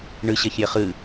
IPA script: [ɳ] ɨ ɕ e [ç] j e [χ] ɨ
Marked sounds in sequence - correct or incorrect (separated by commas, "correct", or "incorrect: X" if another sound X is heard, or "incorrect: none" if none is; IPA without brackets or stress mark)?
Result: correct, correct, correct